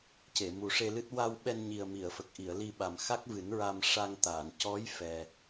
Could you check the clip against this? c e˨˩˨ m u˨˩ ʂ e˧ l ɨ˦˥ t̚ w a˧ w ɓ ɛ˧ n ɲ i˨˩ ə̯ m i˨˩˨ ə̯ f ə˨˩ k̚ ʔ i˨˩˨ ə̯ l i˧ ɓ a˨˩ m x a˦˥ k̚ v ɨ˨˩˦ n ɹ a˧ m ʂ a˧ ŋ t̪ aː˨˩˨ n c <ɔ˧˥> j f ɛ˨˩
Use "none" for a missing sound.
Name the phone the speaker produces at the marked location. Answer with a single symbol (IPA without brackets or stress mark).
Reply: ɔ˧˥